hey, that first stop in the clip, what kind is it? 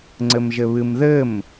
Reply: click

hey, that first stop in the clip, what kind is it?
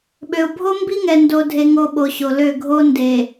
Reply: implosive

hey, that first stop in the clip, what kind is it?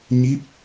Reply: plain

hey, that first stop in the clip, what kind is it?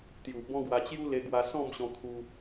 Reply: plain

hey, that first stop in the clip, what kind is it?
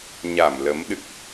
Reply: implosive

